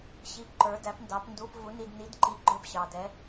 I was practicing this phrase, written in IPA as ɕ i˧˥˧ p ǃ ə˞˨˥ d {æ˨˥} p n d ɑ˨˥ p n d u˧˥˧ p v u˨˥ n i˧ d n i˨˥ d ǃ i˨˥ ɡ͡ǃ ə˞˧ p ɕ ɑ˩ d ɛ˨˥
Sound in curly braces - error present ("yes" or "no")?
no